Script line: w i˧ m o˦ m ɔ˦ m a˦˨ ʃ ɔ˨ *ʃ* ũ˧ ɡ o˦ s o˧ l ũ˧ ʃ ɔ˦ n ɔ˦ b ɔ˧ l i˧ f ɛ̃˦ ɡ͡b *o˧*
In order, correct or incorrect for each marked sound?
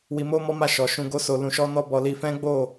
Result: correct, incorrect: o˦˨

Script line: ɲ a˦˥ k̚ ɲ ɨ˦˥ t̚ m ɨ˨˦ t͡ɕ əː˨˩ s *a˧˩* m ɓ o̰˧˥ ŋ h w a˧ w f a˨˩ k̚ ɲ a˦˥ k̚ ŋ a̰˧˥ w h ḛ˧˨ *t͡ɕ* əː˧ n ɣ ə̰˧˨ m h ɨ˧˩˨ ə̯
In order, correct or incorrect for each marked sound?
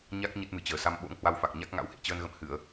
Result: incorrect: a˧, correct

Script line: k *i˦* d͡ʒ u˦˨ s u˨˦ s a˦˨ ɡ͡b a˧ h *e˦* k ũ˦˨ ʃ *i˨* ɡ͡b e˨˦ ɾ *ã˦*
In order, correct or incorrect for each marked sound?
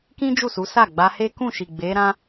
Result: incorrect: ĩ˦, correct, correct, correct

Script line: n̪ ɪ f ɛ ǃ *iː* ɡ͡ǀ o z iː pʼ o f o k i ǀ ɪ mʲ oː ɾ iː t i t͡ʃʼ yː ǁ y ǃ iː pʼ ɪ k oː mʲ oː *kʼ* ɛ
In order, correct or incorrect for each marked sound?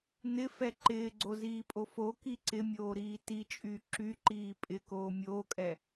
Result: incorrect: ɪː, correct

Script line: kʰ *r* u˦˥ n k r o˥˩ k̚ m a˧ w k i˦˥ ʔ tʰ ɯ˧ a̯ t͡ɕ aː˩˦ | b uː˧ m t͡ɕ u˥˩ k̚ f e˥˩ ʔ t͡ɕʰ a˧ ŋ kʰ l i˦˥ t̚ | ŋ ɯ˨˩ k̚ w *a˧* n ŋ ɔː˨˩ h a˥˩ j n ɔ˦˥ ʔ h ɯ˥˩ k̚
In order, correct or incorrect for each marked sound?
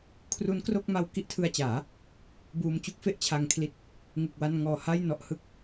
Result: correct, correct

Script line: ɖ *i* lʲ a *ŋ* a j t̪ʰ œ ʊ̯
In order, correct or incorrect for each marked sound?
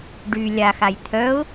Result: incorrect: y, incorrect: x

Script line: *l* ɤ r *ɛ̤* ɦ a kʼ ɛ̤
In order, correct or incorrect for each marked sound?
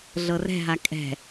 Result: incorrect: ɮ, correct

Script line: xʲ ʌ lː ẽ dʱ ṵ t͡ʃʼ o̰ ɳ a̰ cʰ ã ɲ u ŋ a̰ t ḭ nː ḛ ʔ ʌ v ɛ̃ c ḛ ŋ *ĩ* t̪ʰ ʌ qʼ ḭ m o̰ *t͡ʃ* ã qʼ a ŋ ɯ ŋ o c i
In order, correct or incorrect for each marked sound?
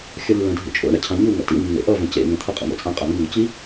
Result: incorrect: ẽ, incorrect: t͡sʼ

